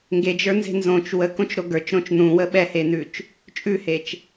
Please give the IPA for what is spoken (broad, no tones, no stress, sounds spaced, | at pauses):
ŋ ɡ e d͡ʒ ə˞ n z e̤ n z õ t͡ʃ w ə k õ t͡ʃ ɾ o ɡ ə˞ t͡ʃ ɾ õ t͡ʃ n ũ w ə ɓ ɛ h e n ʉ t͡ʃ | t͡ʃʼ ʉ h e t͡ʃ